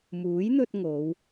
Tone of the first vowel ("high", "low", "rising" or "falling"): rising